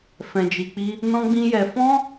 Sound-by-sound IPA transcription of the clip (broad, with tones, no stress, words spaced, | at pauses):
fɛ̃˧d͡ʒi˧k͡pi˦ | nɔ̃˦ɡ͡bĩ˦jɛ˧ fɔ̃˦